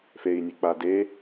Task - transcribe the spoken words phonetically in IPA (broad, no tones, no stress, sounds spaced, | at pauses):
f e i̯ nʲ ɛ k͡p a d e